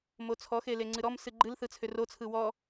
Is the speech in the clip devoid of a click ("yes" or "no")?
no